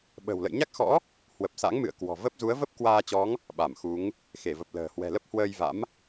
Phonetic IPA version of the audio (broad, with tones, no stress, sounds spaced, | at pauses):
ɓ ə̤˨˩ w l ə̰˧˨ j ɲ a˦˥ k̚ x ɔ̰˧˥ | h w ə˨˩ p̚ s a̰˧˥ ŋ m ɨ̰˧˨ ə̯ k w ɔ̤˨˩ v ə˦˥ p̚ z u˨˦ ə̯ v ə˦˥ p̚ k w aː˧ t͡ɕ ɔ˨˦ ŋ | ɓ a˧˩ m x u˨˦ ŋ | x e˧˩ v ə˨˩ p̚ l ə̤ː˨˩ h w ɛ̤˨˩ l ə˦˥ p̚ h w əː˧ j v a̰˧˥ m